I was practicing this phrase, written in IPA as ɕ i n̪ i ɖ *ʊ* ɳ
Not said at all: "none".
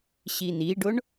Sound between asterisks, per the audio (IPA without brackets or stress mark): ʊ